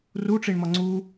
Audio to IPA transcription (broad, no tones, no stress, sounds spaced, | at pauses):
r u ʈ͡ʂ i ɳ m ɒ ŋ͡ǀ u